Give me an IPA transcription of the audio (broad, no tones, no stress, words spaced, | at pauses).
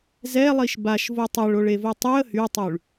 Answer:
zɛlˠiʃ baʃvo tˤɛɭoɭevo tˤyə̯ hytˤyɭ